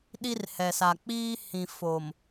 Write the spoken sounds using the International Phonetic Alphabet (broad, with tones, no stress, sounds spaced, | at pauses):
ɗ i˦ r h ɛ˨ s a˨ k͡p iː˦ h ĩ˨ f o˨ m